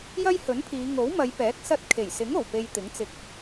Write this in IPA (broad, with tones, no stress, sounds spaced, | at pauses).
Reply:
j ɐ˥ j h ɵ˨˥ n pʰ iː˨˧ ŋ o˨˥ w m ɐ˨˧ j p ɛː˨˥ k̚ s ɐ˧ t̚ kʰ e˨˩ j s ɪ˨˥ ŋ o˨˩ w p e˧ j t̪ ɪ˨˥ ŋ t͡s ɪ˧ k̚